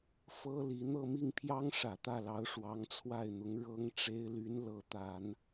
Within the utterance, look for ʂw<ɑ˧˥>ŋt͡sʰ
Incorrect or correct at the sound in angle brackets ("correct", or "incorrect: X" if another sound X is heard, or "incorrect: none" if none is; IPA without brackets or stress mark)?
correct